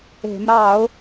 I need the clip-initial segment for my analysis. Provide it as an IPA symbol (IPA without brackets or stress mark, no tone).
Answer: e̤